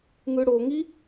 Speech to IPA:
ŋ ɯ ɽ o ŋ i

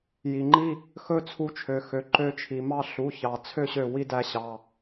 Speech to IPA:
j i˩ ŋ͡ǃ i˥˨ | x ɵ˦ t͡sʰ u˨˥ t͡ʃʰ ø˩ x ø˩ ǃ ø˨˥ t͡ʃʰ i˩ m ɑ˥˨ ɬ u˩˧˩ ç ɑ˩ t͡sʰ ø˥˨ ɕ ø˧˩ w i˦ d æ˨˥ ɕ ɑ˩˧˩

